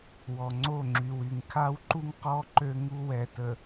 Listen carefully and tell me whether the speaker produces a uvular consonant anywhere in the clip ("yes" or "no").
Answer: yes